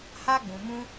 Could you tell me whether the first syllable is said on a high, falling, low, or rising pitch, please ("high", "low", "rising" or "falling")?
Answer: high